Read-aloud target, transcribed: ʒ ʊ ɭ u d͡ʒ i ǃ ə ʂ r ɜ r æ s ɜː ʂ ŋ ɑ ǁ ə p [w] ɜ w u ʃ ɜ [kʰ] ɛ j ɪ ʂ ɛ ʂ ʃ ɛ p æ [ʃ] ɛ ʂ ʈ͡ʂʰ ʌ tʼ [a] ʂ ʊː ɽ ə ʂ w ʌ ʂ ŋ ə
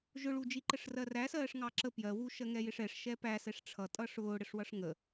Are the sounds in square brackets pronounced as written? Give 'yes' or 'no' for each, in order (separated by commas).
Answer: no, no, no, no